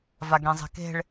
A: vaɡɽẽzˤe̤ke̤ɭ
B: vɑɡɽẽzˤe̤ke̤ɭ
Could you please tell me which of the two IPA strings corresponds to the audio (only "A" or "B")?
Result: A